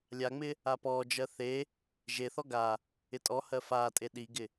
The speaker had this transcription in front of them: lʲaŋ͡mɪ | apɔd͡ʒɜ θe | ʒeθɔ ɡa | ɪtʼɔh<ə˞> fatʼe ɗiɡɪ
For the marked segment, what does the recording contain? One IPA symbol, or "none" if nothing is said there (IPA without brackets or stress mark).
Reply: ɜ